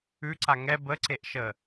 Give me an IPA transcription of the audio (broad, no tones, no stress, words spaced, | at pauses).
ʉǀa ŋɛ bəǀeʔʃə